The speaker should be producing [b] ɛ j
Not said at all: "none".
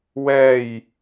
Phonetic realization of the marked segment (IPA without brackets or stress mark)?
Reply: w